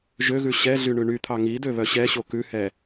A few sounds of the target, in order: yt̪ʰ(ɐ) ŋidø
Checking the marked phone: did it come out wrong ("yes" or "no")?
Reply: yes